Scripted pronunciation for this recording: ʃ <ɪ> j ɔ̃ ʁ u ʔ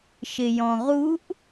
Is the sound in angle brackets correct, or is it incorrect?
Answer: correct